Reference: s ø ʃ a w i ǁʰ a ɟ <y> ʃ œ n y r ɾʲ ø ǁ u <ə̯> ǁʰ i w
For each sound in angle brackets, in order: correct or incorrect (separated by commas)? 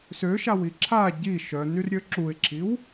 incorrect, incorrect